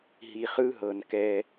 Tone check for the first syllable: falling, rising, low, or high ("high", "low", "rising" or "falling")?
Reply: low